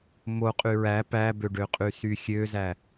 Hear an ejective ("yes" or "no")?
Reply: yes